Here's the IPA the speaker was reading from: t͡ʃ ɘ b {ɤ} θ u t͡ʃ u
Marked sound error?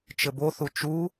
yes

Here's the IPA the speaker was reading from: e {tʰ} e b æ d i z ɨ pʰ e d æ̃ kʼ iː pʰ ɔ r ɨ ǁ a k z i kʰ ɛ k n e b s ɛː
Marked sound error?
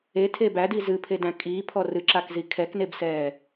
no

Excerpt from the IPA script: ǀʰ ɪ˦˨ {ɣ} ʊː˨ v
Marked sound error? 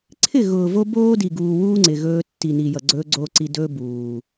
no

